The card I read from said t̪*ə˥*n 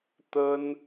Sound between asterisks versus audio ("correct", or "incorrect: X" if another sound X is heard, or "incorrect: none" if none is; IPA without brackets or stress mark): correct